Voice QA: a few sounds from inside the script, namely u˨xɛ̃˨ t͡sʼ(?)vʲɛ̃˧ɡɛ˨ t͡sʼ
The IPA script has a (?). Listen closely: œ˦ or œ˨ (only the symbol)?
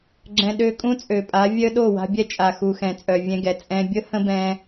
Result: œ˨